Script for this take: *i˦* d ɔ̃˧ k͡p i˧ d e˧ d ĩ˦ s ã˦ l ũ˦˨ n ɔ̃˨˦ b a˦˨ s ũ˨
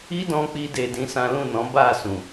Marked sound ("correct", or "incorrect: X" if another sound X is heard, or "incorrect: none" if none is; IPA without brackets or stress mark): correct